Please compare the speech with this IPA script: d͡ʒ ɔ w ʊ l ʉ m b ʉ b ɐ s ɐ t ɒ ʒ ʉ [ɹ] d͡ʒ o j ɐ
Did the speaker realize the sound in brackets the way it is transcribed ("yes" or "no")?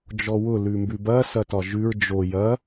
yes